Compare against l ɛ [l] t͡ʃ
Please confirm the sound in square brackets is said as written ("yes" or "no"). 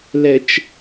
no